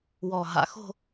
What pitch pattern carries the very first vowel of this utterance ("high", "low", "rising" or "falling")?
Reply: low